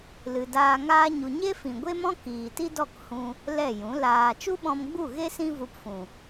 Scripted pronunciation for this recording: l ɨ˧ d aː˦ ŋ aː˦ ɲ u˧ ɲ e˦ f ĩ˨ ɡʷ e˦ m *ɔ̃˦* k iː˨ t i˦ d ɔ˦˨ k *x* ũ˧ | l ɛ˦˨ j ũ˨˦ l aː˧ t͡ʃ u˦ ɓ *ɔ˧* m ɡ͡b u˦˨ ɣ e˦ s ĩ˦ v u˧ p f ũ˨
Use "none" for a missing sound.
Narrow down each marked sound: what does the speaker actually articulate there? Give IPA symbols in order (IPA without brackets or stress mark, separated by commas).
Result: ɔ̃˦, h, ɔ̃˧